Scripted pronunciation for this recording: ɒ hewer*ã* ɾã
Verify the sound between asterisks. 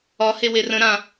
incorrect: ə̃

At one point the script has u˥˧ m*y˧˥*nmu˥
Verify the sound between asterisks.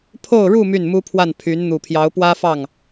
incorrect: y˥˩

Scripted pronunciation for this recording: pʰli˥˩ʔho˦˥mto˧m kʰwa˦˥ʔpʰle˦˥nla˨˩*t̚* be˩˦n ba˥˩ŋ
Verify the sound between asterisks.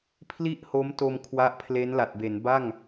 correct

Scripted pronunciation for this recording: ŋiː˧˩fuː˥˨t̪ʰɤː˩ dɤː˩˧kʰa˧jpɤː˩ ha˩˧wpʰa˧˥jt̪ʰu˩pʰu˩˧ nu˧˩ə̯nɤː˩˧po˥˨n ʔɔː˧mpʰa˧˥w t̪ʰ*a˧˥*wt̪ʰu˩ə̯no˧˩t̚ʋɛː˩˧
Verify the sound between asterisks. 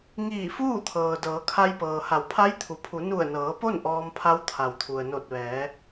incorrect: a˩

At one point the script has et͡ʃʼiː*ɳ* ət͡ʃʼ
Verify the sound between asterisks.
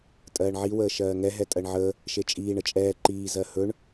correct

